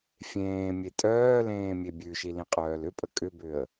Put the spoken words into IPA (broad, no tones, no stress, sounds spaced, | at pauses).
fʲ ẽː mʲ e tʼ œː l ẽː mʲ e bʲ ʉ ʃ i l ĩ qʼ œː l ʏ pʼ ə kʼ ʏ b ʏ ə̯